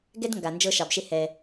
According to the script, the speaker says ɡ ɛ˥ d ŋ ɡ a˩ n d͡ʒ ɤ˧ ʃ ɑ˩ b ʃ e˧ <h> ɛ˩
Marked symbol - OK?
yes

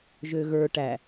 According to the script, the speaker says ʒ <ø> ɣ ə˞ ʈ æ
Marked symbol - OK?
yes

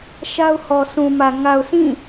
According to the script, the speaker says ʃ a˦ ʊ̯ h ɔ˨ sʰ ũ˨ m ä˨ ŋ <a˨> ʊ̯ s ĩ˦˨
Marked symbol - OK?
yes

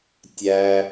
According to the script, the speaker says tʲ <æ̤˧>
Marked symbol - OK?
no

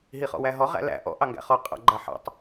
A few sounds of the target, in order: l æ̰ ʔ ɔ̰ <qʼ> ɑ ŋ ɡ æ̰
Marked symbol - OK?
no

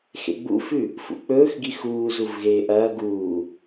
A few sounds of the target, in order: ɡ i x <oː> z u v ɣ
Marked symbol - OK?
no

